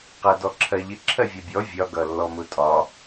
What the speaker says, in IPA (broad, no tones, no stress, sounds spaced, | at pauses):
q æ d ɔ ǁʰ ɜ ʎ ɪ ǁʰ ɜ vʲ ɒ bʲ ɔ vʲ ɒ ɡ ʌ lː ɔ m ʊ tʼ ɒ